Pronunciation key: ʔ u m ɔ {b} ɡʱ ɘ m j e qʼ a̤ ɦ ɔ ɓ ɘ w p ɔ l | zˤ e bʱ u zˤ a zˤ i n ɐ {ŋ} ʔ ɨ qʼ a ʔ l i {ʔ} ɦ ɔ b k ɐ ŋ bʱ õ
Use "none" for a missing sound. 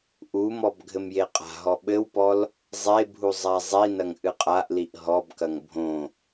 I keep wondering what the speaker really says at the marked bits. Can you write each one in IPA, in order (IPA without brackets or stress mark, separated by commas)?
b, ŋ, ʔ